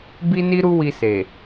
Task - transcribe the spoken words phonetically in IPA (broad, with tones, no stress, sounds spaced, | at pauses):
b i˦ n i˦ ɾ u˦ w i˧ s e˨